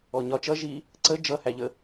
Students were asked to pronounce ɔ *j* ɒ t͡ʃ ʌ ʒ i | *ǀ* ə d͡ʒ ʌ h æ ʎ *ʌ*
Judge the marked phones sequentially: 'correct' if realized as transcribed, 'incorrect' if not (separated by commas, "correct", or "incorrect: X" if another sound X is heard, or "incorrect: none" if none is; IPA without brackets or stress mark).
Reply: incorrect: ɲ, correct, incorrect: ə